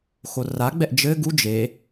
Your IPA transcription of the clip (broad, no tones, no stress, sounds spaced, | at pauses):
x o r a ɡ͡b ɛ ʔ d͡ʒ ɘ ɡ u d͡ʒ e